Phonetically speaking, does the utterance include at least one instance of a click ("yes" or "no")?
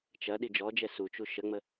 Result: no